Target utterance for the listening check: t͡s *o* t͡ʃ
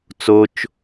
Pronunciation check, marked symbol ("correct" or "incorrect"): correct